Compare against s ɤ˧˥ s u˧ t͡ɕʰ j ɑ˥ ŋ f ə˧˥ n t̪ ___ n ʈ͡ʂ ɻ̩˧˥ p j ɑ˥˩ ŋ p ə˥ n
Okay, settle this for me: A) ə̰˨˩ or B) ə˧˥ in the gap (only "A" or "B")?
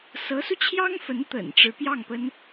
A